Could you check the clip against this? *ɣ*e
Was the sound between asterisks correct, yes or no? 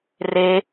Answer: no